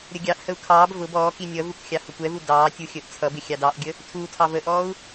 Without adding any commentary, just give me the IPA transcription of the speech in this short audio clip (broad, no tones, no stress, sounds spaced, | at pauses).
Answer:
ɾʲ ə ɡʲ ɑ ʔ h ə u̯ kʰ ɑː b v ʊ b ɔː k i nʲ ʌ v u k xʲ ɑ h ʊ kʷ ɛ v u d ɑː tʲ u xʲ əː ʔ t͡sʰ ʌ b ɪ xʲ ɑ d ɑ ʔ ɡʲ ə | tʰ u tʰ ɑ v ə ʔ ɔː u̯